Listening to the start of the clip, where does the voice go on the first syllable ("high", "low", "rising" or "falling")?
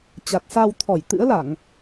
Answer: low